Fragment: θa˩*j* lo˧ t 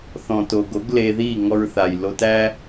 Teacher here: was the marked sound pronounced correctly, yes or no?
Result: yes